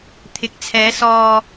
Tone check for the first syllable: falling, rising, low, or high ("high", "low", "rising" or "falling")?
rising